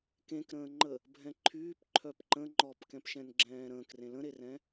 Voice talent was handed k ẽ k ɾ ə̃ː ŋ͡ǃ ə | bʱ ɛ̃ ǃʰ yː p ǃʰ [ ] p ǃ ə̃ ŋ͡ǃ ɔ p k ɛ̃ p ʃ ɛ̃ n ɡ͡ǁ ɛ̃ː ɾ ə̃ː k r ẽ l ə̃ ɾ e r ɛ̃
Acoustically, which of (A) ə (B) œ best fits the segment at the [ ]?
B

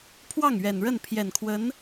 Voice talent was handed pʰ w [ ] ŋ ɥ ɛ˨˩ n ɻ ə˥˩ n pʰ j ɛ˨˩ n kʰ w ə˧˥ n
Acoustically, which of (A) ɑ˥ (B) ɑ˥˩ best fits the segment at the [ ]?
B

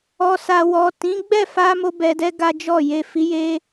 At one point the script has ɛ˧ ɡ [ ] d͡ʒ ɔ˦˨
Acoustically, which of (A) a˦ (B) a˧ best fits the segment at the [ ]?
A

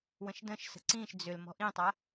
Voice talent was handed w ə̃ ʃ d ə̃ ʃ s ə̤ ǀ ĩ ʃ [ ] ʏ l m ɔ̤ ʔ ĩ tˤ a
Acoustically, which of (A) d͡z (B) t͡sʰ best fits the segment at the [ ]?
A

